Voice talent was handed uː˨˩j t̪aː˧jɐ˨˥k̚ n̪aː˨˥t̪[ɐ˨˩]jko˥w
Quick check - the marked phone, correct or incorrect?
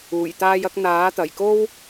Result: correct